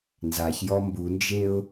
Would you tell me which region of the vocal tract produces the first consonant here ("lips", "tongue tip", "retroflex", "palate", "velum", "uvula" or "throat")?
tongue tip